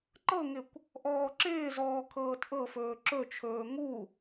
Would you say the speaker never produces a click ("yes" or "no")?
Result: no